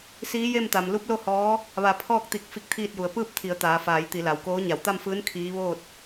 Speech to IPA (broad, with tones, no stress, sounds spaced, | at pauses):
s iː˧˥ j e˥˨ m t̪ a˩ m l u˧˥ p̚ l o˥˨ h ɔː˧˥ | ʋ a˧˩ pʰ ɔː˥˨ k̚ t̪ i˧˩ k̚ f i˧˥ k̚ t̪ʰ iː˥˨ t̚ j u˩˧ ə̯ p ɯː˥˨ p̚ t̪ʰ i˩˧ ə̯ t̪ aː˩˧ f aː˩˧ j t̪ i˩˧ l a˩ w k oː˧˥ ɲ a˩˧ w t̪ a˥˨ m f ɯː˧˥ n kʰ iː˧˥ ʋ oː˥˨ t̚